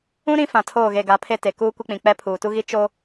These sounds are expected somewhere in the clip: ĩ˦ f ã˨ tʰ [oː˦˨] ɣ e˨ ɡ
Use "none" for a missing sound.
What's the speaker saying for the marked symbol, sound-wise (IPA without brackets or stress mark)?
oː˦˨